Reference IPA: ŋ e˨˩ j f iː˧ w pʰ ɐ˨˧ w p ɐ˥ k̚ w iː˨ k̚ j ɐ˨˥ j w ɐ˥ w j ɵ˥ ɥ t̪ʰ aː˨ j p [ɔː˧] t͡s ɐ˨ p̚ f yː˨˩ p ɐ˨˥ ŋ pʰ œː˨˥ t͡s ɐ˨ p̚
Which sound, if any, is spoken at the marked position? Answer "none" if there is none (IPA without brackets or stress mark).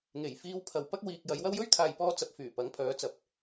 ɔː˧